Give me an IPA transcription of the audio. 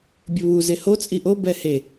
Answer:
bʲʊβu zeho t͡sʼiʔo bɛhe

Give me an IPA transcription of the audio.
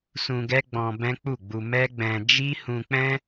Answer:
sũ˧ɡɛ˦ ɡ͡bɔ̃˧bɛ̃˦k͡pu˦˨ɡ͡bu˧ mɛ˦ɡ͡bɛ̃˧ d͡ʒi˦hũ˧k͡pɛ̃˦

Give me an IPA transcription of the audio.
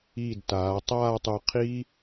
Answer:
iː˧˩dtaː˩˧ tˤaː˥˧tˤu˧qʰi˥

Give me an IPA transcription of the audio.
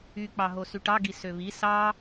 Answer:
y k͡pɑɦosyʈɑ ɡisøβi sɑ

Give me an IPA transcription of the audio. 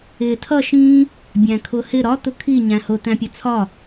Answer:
ɪ tʰʌ ʃĩ | bʲæ̃kʰʊhɪ ɾɒ t̪ʊkʰi ɲæ̃hʊ t̪æ̃pʲʊt͡sʰɒ

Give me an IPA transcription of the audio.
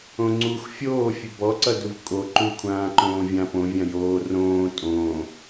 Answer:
õŋ͡ǀux fʲoː fʲɵbɔǀʌduv kʼo ǃukʷʰãː ǃõːvʲã põ vʲãjoː rõː tʼõː

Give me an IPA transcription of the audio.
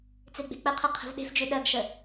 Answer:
t͡seɡ͡be̤k͡pəqʰɤ qʰə̤vɗe̤fd͡ʒʉ ɗɜɡʃə

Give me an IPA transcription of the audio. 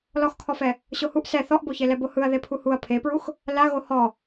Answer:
lɔxkʰɔfɛ | ɕohuʔ sɛ θɔʔboçe lɛbohɯɐ̯ ðepʰuhuɐ̯ pʰepɹux | laɣo hɔ

